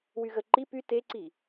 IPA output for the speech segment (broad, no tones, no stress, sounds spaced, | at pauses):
w y ɣ ə ǃ i p y t e ǀ i